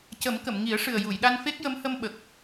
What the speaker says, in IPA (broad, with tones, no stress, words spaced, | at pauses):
cə˨˩˦mkə˨˩˨m ŋi˨˩˦ə̯ʂɨ˨˩ə̯ ju˨˩˨jɗa˧nfe˦˥k̚ jə˧˥mhə˧mɓə˨˩k̚